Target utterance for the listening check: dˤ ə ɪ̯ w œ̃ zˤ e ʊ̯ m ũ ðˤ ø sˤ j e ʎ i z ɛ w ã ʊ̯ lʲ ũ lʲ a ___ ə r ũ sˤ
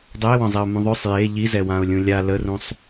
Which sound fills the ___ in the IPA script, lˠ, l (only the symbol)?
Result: l